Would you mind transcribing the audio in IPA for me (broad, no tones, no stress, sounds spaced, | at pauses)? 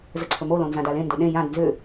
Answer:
z ə ǀʰ ɵ m o l õ n z ã d a l ẽ n d o ɗ ẽ j ã d n z ʏ